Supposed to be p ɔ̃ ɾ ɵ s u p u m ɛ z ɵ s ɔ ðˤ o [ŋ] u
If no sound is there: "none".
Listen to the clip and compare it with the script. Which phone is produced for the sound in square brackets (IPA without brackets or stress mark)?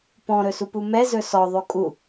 kʼ